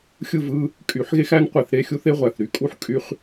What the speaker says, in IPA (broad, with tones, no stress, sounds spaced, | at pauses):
xʲ ɯ˥˨ v ɯ˧˥˧ | kʼ y˨˩˦ ħ ɣ e˥ x æ˥ n qʷ e˨˩˦ θ ɾ e˧˥˧ xʲ u˥ θ e˧˥˧ ʁʷ æ˩ θ ɾ y˩ kʼ u˥ ħ kʼ y˥ χ